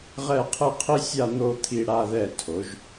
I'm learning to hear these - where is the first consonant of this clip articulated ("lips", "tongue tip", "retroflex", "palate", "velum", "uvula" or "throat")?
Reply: uvula